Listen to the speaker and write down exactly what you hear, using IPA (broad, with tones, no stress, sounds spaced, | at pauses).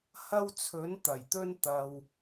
h ɐ˥ w t͡sʰ ɵ˨˥ n t̪ ɐ˨˩ j t̪ ɵ˥ n t̪ ɐ˧ w